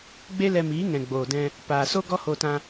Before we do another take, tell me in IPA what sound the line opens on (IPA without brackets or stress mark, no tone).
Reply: ɡ͡b